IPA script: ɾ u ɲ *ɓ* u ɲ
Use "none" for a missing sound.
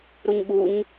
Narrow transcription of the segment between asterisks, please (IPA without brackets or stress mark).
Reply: ɓ